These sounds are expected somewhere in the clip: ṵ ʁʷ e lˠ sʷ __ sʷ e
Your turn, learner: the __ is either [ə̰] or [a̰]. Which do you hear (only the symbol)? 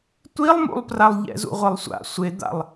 a̰